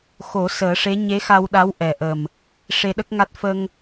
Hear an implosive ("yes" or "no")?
yes